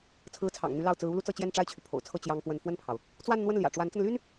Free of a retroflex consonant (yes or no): no